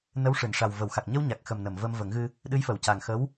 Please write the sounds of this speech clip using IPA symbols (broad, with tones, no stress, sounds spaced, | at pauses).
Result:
n ə˧˥ w ʂ ɨ˨˩˨ n ʂ a˨˩ w v ə˨˩˨ w x a˨˩ k̚ ɲ ə˧ w ɲ a˨˩ k̚ x ə˨˩ m n ə˨˩˨ m v ə˧ m v ə˨˩˦ ŋ ɣ ɨ˧ | ɗ ɨ˧˥ j f ə˨˩ w c a˨˩ ŋ x ə˧˥ w